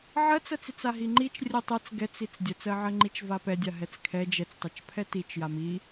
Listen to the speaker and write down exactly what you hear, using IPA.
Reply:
ʕ ɜ t͡s ɜ t͡s i t͡s a ɦ i ŋ͡ǃ i t͡ʃ rʲ ɜ tˤ ɛ t͡s ɡ ɛ t͡s i t͡s dʲ ɜ t͡s ɜ ʕ ɜ ŋ͡ǃ i t͡ʃ v a p ɛ dʲ a ɦ ɛ t͡s kʰ ɛ d͡ʒ ɛ t͡s tˤ a t͡ʃ pʰ ɛ t i t͡ʃ j a m i

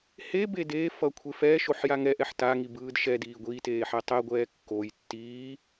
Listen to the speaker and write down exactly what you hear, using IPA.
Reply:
h e b e d eː f ʌ kʷʰ e f ɛː ʃ o ħ j a ŋ ɛ ʔ ɛ ħ t a ŋ i b ɯː d ʃ ɛ d iː ɡʷ iː t eː ħ ɛ tˤ ɛ ɡʷ ɛː kː o j tː iː

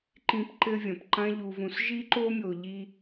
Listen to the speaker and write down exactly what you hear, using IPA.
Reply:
ǃ ĩ˧ p ǃ ɘ˦ vʲ ɐ̃˨ p ǃ ɐ̃˦ ʎ u˧ v ũ˧ s ʒ i˦ ǃ o˦ mʲ o˧ ʎ i˦

